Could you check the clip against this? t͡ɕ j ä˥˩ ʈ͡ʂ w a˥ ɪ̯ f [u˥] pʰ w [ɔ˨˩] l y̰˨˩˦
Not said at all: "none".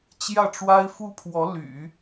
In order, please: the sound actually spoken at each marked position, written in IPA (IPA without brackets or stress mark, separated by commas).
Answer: u˥, ɔ˧˥